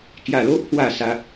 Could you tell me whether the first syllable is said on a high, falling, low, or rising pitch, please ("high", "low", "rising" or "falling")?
low